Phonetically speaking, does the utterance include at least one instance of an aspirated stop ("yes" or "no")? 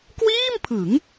yes